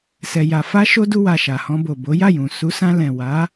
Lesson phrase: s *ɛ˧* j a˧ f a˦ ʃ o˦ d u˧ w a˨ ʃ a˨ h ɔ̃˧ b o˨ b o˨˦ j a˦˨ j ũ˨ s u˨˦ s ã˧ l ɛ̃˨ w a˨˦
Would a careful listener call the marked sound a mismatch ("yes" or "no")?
no